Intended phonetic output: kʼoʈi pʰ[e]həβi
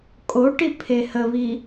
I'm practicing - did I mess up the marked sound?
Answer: no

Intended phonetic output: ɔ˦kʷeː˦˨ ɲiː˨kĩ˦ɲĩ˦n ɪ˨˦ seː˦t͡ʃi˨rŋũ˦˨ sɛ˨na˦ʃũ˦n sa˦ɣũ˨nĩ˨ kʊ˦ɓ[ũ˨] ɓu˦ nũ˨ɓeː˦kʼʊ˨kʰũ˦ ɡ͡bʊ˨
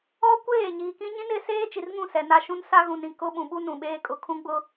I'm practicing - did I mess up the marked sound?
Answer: no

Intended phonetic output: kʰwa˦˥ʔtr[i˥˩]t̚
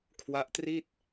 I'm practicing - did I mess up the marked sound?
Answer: no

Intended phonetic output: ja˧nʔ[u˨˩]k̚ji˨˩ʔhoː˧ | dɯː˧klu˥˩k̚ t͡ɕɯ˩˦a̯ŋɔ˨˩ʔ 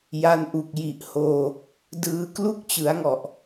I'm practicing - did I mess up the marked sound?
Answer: no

